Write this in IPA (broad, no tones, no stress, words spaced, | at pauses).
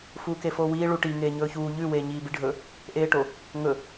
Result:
fuːkefoːwiː ɭuʈi ŋeːɲɵːçuː ʎʉ weːɲiːbiɖʱɵ | ʔeːʈo | ŋɵ